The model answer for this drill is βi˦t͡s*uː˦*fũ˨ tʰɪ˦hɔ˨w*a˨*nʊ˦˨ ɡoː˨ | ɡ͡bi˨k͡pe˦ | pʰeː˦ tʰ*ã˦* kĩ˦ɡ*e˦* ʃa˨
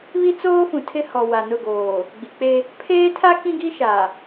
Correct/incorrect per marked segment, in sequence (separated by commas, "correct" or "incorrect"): incorrect, correct, incorrect, incorrect